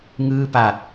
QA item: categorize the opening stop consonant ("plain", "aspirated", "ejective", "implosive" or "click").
plain